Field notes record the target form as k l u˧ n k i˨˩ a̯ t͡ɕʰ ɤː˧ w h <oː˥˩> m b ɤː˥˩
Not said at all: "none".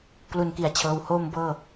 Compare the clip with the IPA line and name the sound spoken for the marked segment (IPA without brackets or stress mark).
oː˥˩